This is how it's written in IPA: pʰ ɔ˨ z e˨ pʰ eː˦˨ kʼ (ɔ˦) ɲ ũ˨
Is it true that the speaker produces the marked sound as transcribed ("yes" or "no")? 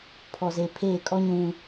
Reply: yes